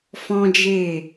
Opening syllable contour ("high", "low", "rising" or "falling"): high